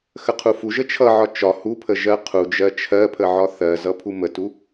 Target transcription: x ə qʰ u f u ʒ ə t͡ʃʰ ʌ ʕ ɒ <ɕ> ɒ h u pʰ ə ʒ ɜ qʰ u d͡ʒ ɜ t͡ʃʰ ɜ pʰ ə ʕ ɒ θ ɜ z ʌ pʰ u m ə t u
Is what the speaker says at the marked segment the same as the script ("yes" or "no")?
no